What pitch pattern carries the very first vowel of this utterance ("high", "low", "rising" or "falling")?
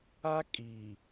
high